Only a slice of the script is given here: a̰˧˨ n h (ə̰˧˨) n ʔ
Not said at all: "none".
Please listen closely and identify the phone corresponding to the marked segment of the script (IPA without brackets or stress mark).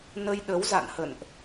ə̰˧˨